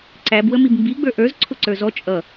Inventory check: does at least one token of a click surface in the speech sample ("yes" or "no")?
yes